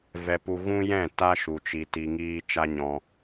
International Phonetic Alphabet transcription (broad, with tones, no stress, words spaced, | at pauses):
vɛ˦pu˦ ɣũ˦jɛ̃˦˨ ta˦ʃu˨ t͡ʃi˧ti˧ŋiː˦ t͡ʃa˦ɲɔ̃˧